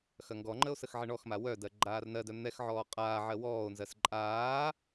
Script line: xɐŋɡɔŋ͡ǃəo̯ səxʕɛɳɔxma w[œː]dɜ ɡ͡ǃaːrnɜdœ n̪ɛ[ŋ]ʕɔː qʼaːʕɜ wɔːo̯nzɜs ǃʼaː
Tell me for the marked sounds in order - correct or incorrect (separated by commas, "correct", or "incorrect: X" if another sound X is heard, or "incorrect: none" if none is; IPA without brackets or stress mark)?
incorrect: œ, incorrect: x